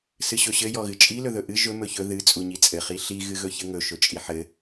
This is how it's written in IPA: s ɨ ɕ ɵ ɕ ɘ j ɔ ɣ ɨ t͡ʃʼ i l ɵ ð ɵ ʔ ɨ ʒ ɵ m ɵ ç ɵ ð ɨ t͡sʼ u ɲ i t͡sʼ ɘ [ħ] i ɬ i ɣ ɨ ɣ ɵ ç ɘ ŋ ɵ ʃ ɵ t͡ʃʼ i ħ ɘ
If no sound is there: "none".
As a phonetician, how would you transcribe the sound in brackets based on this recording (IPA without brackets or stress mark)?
χ